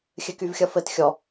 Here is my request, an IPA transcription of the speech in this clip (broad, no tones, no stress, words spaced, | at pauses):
xʲɘkyvxʲʌfɘt xʲɔ